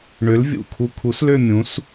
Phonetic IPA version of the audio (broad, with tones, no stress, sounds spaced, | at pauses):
ɳ ø˨˥ l vʲ ṵ˨˩ kʰ u˧ kʰ u˨˥ s l ø˥˧ mʲ ũ˨˥ s